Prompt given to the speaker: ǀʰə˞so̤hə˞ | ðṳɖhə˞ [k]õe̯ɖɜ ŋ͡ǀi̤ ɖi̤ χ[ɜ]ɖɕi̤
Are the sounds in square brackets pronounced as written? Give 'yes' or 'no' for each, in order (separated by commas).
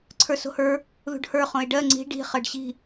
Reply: no, yes